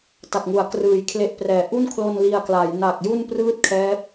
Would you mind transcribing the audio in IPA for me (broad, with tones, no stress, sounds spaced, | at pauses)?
t a˨˩ k̚ ŋ u˩˦ a̯ k r ɯː˨˩ j kʰ l e˦˥ ʔ p r ɛː˨˩ ʔ u˥˩ n kʰ l o˧ n l i˧ a̯ k l a˩˦ j n aː˨˩ k̚ j u˥˩ n p r ɯː˥˩ t̚ kʰ ɛː˦˥ p̚